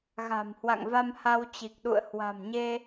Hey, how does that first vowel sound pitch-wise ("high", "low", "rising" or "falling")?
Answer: low